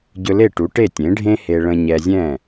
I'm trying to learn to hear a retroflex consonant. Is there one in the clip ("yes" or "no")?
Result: yes